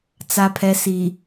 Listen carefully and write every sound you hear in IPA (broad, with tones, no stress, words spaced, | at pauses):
t͡sa˨pʰɛ˨ si˨